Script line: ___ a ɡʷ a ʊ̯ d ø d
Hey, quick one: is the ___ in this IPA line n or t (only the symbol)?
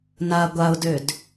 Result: n